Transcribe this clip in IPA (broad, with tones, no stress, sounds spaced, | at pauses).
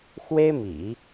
x w e˥ ɪ̯ m ḭ˨˩˦